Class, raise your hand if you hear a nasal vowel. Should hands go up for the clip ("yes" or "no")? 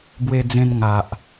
yes